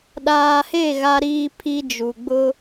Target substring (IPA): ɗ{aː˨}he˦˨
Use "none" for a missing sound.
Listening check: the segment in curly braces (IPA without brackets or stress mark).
aː˨